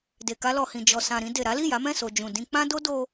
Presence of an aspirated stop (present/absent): absent